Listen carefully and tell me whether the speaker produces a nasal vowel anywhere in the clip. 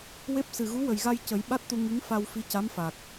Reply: no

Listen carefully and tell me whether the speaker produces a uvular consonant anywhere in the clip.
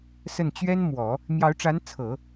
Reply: no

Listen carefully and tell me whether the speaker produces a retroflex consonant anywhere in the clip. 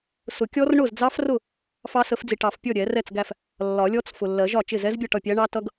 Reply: yes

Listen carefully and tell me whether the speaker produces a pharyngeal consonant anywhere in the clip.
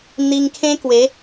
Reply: no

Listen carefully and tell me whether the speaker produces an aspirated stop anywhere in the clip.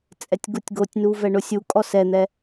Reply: no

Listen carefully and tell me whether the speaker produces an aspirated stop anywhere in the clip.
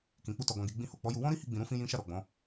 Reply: no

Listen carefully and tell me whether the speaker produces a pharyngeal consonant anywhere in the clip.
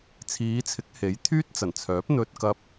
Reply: no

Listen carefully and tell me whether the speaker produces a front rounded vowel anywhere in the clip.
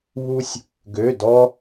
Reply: yes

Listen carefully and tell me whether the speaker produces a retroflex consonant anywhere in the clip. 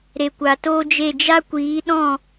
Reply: no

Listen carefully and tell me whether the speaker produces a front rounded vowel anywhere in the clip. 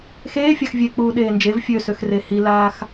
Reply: yes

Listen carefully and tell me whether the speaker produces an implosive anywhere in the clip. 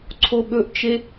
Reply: yes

